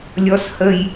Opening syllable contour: high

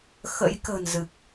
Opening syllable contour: rising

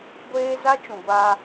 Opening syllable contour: high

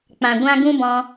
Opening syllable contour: low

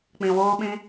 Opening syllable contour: low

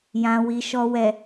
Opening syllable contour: low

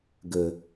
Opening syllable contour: low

